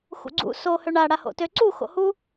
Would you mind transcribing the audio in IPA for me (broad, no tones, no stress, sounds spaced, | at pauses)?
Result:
x ṵ ɡ͡ǀ ṵ s o h ø ɳ a ɽ a h o̰ t ø ǀ u x o̰ h u